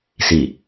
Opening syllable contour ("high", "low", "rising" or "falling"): low